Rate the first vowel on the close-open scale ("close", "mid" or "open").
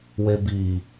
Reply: mid